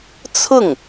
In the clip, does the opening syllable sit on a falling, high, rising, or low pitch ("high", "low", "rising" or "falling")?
falling